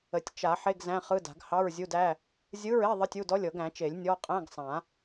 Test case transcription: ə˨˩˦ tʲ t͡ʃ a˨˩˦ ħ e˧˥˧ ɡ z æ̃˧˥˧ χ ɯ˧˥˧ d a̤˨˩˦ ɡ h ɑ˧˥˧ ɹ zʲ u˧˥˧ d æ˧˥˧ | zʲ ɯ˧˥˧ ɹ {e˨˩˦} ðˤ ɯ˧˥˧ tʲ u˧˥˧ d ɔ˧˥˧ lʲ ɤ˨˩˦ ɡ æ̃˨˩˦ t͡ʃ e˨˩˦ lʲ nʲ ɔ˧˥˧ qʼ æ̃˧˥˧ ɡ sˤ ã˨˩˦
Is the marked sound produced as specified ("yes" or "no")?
no